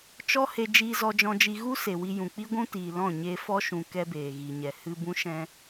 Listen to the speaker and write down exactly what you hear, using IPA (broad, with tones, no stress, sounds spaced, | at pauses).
t͡ʃ ɔ˦ h e˧ d͡ʒ iː˧ z ɔ˧ d͡ʒ ɔ̃˧ d͡ʒ i˧ ɣ u˦ s e˨ w i˧ j ũ˨ k͡p i˦ ɡʷ ũ˦ t iː˨ l ɔ̃˦˨ ɲ e˧ f ɔ˦ ʃ ũ˨ k ɛ˦ b eː˨ ɣ i˨ ɲ ɛ˨ h ɨ˧ b ũ˦ ʃ ɛ̃˦